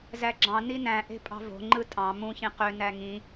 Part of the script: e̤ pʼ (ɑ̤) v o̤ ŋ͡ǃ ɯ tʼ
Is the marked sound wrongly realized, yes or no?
no